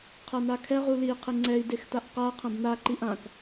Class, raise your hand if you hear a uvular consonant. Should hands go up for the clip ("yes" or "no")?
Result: yes